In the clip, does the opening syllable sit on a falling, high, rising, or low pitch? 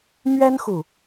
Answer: high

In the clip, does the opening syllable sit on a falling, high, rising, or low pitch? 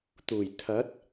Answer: low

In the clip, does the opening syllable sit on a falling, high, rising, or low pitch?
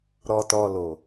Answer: low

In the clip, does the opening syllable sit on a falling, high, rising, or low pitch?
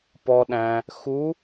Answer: low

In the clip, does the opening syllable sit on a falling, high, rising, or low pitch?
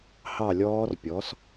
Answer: falling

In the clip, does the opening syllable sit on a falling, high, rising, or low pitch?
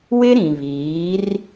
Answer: high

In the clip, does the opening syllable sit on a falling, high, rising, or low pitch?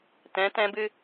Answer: rising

